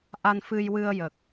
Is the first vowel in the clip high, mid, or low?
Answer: low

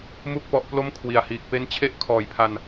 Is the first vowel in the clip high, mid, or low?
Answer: high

